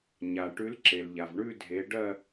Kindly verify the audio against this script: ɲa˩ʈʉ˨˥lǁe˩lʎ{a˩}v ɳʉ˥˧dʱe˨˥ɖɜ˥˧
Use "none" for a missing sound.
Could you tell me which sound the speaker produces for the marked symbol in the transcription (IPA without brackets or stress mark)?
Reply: a˩